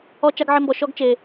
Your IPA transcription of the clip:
ɔ˦ t͡ʃ a˦ ɡ ʕ ɪ˦ m b ɔ˧ ʃ ɔ˦ ɡ t͡ʃ e˧

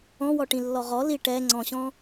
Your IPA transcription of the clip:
ɔ̃ w ɔ ʈ ĩ lː ɔ ʁ ɔ l i ʈ ɛ ŋ͡ǀ ɔ̃ ɕ ɔ̃

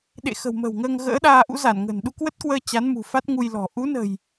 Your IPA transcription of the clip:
ɗ ḛ˧˨ x ə̤˨˩ w m ə̤˨˩ w ŋ əː˧ ŋ ɣ ə̰ː˧˥ ɗ aː˧ ʔ ṵ˧˥ z a˧˩ n ŋ ə̤˨˩ n ɗ u˧ k w ə˦˥ t̚ k w əː˧ t͡ɕ a˨˦ n m ṳ˨˩ f a˦˥ t̚ ŋ u˧ j l ɔ̤˨˩ ʔ u˨˦ n ə̤˨˩ j

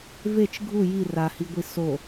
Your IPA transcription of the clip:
v e t͡ʃ ɡʱ u j i r a h i ɡʷ i s o

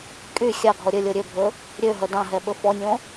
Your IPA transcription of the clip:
kʼ y xʲ ɑ ɡʱ ɔ ɾʲ ɵ lʲ o ɾʲ ø bʱ ɵ | ɾʲ ø ɦ œ d ɑ̃ ɦ ɛ ɓ ɵ f ɔ nʲ õ

